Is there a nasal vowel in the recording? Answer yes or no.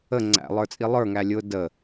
no